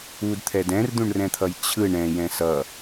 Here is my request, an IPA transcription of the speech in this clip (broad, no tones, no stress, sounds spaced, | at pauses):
u d t̪ʰ ɛ d ɛ̃ r d̪ ũ ɳ r ɛ̃ t̪ʰ ʌ j t͡ɕʰ ɯ ɳ ɛ̃ j ɛ̃ s ʌ